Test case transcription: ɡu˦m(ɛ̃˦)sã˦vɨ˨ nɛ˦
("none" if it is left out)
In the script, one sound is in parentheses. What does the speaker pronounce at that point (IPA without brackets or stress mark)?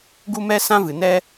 ɛ˦